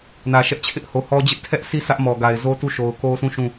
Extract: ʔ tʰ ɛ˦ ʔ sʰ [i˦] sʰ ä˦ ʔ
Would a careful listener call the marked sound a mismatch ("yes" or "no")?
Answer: no